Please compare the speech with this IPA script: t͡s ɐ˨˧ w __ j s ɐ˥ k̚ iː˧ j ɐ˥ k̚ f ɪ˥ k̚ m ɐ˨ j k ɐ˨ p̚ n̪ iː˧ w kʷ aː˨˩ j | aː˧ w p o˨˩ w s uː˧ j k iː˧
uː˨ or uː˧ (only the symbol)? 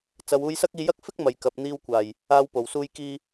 uː˧